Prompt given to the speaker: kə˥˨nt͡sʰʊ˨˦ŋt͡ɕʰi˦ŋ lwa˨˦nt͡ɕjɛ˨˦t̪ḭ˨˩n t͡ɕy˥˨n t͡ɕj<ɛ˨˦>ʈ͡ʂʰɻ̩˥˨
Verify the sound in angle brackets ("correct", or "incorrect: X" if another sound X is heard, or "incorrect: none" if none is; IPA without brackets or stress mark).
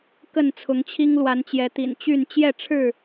incorrect: ɛ˥˨